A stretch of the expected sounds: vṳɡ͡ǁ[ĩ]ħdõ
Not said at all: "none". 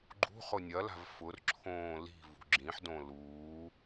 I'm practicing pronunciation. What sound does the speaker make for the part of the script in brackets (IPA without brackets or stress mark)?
ĩ